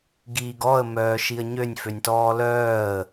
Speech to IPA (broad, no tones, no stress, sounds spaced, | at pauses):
ɡ iː ɡ ɔ ə̯ m œː ʃ i ə̯ ɲ ø nʲ f ø nʲ t ɔː l œː ə̯